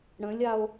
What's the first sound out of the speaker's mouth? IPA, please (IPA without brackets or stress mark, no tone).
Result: ɽ